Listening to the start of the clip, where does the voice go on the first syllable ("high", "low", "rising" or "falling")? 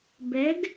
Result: rising